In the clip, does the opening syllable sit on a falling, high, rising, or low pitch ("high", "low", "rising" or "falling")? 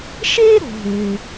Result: high